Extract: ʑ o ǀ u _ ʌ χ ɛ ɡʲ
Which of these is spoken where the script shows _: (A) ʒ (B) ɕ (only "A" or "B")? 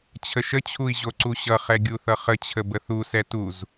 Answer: B